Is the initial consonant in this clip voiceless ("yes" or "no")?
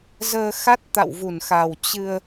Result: no